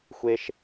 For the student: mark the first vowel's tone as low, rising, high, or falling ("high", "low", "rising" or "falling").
high